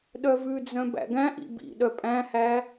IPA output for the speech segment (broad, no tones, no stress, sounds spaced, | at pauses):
ɗ œ v ʉ d͡z œ̃ b æ̰ ɡ æ̃ ʔ ḭ b ḭ ɗ œ pʼ æ̃ h æ